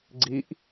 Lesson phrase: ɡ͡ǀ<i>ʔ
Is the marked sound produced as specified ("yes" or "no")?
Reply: yes